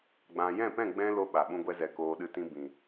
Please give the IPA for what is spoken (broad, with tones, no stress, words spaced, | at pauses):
ɡ͡bã˨jɛ̃˦˨pɛ̃˦˨ ɡ͡bɛ̃˧ lo˧ ɓa˨ɓũ˧ ɡʷɛ˧zɛ˨koː˨ ɗɨ˨tĩ˨ bĩ˨